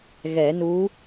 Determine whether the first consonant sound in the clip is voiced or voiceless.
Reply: voiced